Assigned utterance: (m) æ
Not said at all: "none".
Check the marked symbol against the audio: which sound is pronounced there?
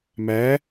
m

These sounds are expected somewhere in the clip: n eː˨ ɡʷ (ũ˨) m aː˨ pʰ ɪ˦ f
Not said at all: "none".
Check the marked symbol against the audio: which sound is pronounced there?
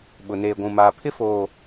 ũ˨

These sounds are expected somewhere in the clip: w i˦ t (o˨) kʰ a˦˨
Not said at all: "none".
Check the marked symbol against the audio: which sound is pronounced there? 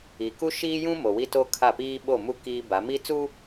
o˦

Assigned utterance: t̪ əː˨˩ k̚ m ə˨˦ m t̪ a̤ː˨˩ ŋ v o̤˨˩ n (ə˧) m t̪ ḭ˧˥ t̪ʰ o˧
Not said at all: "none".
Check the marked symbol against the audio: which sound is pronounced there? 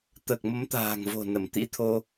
ə˧˩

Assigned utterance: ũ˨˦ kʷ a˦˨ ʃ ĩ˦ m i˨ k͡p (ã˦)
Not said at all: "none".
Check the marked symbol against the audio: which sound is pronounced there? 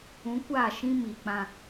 ã˦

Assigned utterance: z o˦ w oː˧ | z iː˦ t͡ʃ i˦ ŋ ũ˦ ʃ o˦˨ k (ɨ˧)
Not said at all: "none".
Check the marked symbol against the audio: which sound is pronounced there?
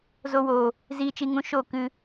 ɨ˧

